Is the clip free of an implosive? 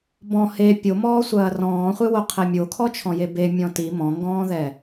yes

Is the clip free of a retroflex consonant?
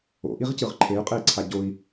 yes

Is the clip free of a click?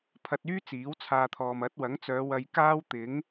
yes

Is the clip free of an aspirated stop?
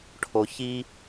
no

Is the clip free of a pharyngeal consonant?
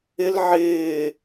no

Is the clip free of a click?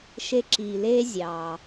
no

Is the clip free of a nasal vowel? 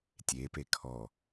yes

